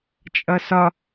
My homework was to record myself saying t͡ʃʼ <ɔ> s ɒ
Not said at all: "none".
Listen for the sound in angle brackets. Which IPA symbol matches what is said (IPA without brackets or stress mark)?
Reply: ʌ